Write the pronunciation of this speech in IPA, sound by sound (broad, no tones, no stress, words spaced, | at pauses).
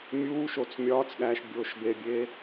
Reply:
mʲuːʃot͡s mʲɒːt͡sɠæːʃ bʲoːʃbebʲeː